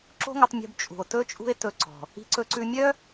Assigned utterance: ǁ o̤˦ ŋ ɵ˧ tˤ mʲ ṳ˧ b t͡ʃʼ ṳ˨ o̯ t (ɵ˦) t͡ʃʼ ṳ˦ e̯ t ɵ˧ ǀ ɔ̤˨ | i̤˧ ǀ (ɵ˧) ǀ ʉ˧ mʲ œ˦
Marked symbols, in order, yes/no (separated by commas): yes, yes